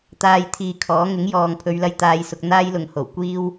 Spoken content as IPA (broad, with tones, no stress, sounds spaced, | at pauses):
t̪ aː˧ j t̪ʰ iː˨ kʰ ɔː˨˥ ŋ ɪ˨˥ ŋ j ɔː˨ ŋ pʰ ɵ˨˧ ɥ l ɐ˧ j t̪ aː˧ j s ʊ˧ k̚ n̪ aː˥ j l ʊ˨ ŋ h o˨˩ w kʷ iː˥ w